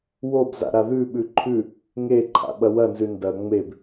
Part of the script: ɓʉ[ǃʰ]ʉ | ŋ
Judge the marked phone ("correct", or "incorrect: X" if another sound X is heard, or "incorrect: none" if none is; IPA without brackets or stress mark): correct